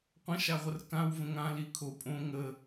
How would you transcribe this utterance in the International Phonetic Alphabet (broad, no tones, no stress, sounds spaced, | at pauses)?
qʷ ə̃ ʃ a ʁʷ ə r k ã w v ə̃ ŋ ã l i kʰ o pʼ õ ŋ ə